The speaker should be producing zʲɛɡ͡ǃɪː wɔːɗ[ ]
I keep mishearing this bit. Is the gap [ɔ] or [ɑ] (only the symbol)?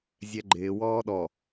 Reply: ɔ